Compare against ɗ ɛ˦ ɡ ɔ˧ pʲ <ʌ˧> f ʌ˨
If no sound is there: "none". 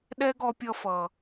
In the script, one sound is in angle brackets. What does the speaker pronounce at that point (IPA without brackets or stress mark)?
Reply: ʌ˧